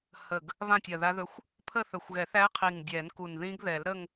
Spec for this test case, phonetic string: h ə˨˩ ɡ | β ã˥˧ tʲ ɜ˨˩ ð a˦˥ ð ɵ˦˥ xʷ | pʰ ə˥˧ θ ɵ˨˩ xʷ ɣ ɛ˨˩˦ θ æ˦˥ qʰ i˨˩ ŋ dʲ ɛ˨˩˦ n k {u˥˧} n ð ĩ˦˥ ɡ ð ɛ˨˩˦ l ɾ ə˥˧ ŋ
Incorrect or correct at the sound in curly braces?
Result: incorrect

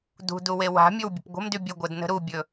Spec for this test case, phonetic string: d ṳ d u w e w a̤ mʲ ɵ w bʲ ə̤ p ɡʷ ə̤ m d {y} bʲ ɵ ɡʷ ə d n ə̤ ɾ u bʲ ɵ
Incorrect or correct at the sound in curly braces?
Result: correct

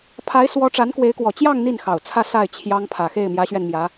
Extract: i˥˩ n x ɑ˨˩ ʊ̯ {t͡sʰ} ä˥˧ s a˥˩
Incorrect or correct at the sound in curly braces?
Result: correct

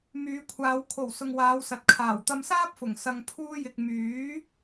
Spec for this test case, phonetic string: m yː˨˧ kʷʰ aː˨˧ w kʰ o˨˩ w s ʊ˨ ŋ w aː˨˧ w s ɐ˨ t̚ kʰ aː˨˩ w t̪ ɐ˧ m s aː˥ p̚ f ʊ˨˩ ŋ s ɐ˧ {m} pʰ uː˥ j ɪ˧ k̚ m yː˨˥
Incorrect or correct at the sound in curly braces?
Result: incorrect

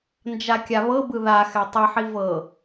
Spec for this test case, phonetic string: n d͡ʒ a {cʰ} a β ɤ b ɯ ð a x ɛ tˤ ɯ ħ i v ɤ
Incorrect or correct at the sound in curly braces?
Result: incorrect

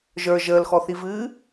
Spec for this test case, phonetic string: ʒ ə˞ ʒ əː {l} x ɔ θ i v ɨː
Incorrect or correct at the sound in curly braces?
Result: correct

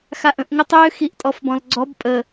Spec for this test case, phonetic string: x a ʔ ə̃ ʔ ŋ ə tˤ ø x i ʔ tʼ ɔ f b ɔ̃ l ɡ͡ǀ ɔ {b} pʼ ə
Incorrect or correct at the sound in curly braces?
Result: correct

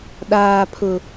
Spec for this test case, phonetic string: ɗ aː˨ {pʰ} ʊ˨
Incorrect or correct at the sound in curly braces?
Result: correct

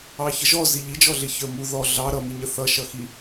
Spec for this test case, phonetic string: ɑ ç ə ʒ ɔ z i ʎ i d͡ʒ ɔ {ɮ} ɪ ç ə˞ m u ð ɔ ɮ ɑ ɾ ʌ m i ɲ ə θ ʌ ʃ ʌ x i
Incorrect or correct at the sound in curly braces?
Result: correct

